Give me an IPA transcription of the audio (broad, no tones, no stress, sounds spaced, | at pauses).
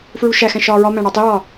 f ɹ u ʃ æ x æ̃ ʃ ɒː ɹ ɒ m æ̃ ɽ ɒ tˤ i ɹ ɒ